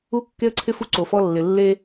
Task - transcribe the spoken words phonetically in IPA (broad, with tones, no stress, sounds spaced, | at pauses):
u˦ kː e˦ ə̯ ǀʰ ɪ˦ f u˦ ǀ o˨ f ɔ˦ lː ɪ˨ lː e˦